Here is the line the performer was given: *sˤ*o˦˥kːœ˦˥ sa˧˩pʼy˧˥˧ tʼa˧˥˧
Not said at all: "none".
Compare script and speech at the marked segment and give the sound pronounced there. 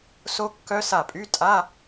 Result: s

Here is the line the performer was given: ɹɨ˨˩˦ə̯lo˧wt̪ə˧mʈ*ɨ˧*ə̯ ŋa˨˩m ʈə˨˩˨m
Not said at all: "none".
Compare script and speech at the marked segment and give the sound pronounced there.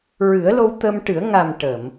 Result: ɨ˨˩˦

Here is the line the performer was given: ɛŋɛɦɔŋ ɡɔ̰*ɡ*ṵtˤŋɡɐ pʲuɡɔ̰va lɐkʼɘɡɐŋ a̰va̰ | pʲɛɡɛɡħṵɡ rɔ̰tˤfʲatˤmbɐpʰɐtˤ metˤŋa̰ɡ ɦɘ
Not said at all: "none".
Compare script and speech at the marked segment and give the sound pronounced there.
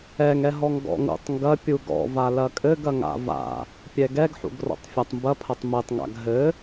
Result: ŋ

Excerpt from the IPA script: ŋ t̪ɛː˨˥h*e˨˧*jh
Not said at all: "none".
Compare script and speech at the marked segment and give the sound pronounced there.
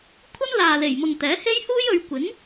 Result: e˥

